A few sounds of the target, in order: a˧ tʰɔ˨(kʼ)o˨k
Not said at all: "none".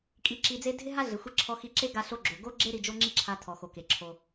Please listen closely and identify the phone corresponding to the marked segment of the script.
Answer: x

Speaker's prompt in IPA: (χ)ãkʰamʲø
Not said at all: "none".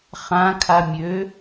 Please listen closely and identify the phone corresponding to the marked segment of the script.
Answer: χ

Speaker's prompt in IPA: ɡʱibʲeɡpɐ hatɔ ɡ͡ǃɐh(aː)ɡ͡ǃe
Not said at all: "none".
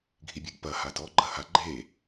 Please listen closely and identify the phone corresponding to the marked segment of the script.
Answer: a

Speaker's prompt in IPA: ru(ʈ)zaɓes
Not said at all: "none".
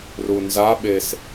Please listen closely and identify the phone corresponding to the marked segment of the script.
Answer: n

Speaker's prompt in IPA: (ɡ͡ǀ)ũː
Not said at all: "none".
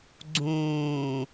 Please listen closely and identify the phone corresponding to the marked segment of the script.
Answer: ɡ͡ǀ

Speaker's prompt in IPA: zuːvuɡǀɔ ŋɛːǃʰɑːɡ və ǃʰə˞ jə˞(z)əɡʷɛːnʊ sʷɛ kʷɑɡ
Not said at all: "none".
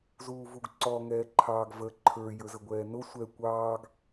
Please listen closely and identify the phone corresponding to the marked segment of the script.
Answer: z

